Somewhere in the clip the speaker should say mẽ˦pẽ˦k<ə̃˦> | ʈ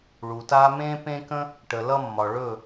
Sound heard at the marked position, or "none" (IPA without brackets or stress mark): ə̃˦